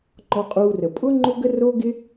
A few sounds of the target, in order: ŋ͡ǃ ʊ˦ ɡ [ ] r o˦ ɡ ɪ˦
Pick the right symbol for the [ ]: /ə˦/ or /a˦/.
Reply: ə˦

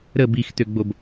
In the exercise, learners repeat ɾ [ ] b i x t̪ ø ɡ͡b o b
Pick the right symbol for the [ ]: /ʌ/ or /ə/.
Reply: ə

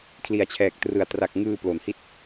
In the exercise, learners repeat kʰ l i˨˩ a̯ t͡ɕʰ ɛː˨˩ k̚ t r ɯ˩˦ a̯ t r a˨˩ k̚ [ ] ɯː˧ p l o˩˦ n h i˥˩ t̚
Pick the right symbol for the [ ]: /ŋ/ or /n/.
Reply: ŋ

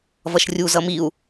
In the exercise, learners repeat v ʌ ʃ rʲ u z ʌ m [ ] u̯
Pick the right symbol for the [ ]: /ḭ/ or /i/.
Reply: i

